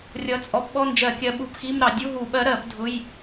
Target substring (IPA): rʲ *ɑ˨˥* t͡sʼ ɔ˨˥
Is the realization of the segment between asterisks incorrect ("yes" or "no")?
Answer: yes